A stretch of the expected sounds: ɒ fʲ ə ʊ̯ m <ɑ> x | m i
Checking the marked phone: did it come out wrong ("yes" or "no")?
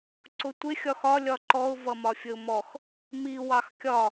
yes